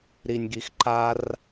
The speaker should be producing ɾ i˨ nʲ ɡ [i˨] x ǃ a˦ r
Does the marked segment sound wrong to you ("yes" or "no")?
no